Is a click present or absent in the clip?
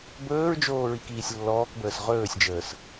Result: absent